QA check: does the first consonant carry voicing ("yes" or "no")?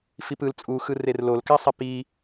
no